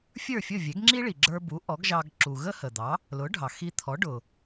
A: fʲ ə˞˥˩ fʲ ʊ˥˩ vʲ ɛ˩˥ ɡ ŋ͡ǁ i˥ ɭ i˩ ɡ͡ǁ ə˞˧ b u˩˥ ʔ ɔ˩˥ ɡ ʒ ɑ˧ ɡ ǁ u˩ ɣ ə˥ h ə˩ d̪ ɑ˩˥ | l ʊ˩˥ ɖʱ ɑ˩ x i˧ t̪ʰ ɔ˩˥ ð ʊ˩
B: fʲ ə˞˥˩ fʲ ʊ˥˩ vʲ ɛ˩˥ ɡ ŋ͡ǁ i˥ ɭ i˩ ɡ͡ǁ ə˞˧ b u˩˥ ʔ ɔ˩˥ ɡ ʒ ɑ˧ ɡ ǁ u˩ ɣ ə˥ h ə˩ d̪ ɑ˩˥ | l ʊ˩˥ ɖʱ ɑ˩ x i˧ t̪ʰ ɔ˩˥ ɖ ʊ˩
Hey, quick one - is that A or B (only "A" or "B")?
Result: B